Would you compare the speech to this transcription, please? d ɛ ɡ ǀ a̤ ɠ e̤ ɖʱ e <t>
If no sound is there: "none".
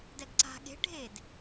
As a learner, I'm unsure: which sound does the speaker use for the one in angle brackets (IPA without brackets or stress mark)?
d